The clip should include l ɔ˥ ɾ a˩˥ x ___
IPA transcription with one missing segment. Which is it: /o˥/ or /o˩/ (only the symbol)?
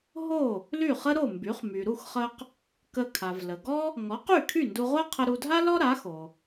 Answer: o˩